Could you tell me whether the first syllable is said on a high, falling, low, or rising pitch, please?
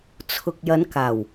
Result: low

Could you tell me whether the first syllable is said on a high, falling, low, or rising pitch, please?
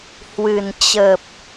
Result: low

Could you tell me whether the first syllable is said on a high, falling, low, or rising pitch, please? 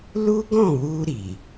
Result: high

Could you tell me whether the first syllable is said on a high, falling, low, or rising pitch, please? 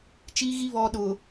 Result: high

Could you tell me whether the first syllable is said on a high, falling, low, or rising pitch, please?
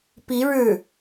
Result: rising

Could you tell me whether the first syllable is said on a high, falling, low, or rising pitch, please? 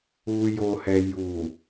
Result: low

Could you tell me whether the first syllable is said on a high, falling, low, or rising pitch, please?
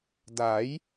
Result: rising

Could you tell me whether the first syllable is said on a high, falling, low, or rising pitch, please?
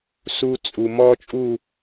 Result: high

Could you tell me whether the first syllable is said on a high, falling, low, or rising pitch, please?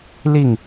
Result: falling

